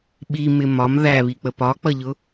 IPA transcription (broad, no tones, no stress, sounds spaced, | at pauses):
ɓ i m ɪ m ɒ m ð æ β i k͡p ə p ɒ k͡p ʌ ʎ ʊ